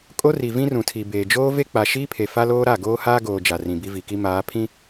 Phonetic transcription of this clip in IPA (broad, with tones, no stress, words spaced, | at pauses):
kʼo˦ri˨ vĩ˦rũ˨tʰi˨beː˨ d͡ʒoː˦ve˦ k͡pa˨ʃiː˦pʰe˨ fa˦loː˦ɾa˦˨ ɡoː˦haː˦ɡoː˨ d͡ʒa˨rĩ˨bi˦vi˨ ki˦maː˨˦pʰĩ˦